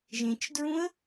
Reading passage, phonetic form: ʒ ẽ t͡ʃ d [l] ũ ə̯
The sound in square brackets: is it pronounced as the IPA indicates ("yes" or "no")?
no